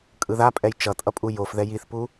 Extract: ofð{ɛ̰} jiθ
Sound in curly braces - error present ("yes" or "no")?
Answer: yes